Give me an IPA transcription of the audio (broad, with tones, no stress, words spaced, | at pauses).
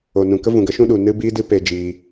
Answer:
o˨nũ˨ kə˦vũ˨ɡə˨˦ʃũ˦ ɗu˨nɨ˦biː˦dɨ˦ pe˧d͡ʒiː˧